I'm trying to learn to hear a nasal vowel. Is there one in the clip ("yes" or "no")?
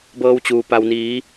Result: no